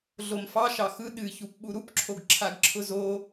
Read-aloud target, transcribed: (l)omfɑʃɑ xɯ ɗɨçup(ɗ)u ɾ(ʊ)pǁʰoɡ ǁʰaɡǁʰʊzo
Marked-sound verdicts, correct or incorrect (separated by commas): incorrect, incorrect, incorrect